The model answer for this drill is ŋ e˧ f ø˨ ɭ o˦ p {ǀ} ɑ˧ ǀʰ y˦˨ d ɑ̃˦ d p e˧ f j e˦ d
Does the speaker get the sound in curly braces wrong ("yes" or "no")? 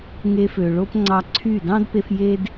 yes